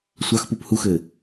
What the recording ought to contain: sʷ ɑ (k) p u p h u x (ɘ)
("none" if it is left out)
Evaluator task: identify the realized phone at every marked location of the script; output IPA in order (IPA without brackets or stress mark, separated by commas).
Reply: x, ɘ